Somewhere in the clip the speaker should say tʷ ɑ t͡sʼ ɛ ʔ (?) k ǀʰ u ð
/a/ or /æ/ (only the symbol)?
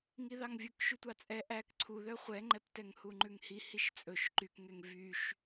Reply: æ